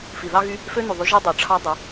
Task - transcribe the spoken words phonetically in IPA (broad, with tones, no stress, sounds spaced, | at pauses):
f i˨ ð ɑ˦ ɣ y˦ | f ø˦ n y˨ ðˤ y˧ ʒ i˦ dˤ ø˨ ʈ͡ʂʰ ɑ˦ dˤ e˨˦